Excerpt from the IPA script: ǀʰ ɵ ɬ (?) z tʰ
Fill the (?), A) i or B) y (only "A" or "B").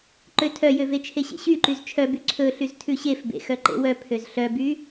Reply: B